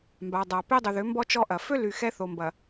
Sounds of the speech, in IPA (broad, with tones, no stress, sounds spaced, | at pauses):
m b a˨ dˤ a˨ p e˦ dˤ ʊ˨ ð ʏ˨˦ m b ɔ˦ t͡ʃ ɔ˦ ʔ ɐ˨ f ø˦ l y˨ x ɛ˦ θ o˨ m b ɐ˨